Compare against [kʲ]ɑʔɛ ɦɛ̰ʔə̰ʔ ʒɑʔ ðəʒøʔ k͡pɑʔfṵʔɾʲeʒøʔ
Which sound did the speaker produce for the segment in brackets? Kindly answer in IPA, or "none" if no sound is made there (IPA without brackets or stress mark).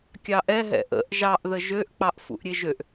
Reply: kʲ